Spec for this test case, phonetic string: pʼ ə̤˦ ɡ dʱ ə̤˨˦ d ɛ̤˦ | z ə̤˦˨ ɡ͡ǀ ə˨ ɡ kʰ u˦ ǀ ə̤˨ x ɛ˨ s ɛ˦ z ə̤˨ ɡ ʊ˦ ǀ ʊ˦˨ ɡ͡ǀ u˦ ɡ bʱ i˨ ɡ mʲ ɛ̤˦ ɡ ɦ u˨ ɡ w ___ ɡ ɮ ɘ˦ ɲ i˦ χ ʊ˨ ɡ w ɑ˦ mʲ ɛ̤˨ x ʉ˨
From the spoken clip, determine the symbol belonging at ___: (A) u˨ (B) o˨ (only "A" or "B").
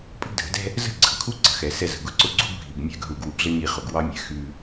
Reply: A